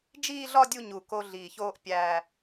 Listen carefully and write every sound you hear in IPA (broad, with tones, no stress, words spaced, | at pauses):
d͡ʒiː˥˧ɮɒ˥˧ dʲu˥˧ɲu˨˩ ko˧ ɮiː˨˩çoː˧ʔ pʲæ˨˩